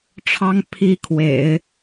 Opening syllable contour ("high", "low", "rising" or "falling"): high